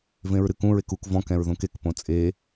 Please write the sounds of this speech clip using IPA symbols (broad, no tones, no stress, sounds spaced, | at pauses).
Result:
v ẽ ɹ ɾ ɨ k ũ ɹ e k u k v ɔ̃ k ɛ̃ ɹ ð õ k e k p õ t͡sʼ e